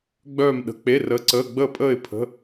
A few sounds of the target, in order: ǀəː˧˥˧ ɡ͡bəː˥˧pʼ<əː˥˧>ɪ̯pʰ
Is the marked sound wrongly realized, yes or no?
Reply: no